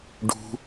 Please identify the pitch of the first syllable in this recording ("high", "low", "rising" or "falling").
high